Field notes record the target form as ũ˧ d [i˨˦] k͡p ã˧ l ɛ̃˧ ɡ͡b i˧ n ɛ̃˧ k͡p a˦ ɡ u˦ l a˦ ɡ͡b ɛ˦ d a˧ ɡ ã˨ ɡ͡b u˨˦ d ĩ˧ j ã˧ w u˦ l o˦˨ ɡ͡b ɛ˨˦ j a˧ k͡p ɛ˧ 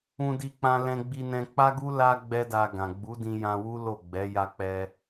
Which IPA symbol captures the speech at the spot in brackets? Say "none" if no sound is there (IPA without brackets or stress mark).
i˧